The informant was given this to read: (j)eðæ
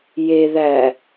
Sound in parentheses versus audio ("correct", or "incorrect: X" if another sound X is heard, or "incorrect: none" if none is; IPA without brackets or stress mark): correct